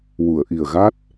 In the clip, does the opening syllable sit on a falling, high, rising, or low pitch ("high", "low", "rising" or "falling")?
low